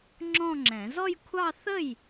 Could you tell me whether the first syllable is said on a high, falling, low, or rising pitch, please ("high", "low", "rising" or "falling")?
falling